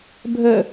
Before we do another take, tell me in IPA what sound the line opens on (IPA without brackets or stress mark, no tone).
bʱ